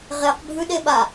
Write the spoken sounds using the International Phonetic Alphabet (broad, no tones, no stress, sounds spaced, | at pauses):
ʁ e q bʱ ʉ ɗ e ɓ a